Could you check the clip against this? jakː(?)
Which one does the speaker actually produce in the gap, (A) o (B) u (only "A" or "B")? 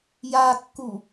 B